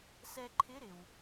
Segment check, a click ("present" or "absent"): present